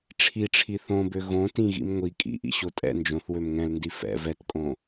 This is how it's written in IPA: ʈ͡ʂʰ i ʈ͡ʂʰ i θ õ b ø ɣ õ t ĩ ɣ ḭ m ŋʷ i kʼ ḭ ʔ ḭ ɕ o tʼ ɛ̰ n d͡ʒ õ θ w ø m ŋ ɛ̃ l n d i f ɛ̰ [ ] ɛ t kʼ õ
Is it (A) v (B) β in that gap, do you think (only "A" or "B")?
A